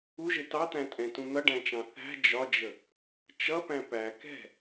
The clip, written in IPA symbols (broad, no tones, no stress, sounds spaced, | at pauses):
u ʒ ɪ t ɑ t̪ æ̃ tʼ ɛ̃ t ũ n̪ ʌ ɖ æ̃ t͡ʃ ɑ̃ θ æ̤ d͡ʒ ɒ d͡ʒ ə | t͡ʃ ʌ p æ̃ p æ k ɛ̤